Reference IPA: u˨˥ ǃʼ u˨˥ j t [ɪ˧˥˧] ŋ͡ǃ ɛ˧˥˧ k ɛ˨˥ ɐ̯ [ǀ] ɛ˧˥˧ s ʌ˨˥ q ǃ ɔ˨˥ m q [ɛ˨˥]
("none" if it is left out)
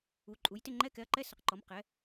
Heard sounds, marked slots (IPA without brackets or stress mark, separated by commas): ɪ˧˥˧, ǃ, ɛ˨˥